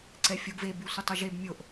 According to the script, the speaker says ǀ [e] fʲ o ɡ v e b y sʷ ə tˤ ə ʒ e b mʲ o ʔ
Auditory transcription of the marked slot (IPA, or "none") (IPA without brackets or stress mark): ɛ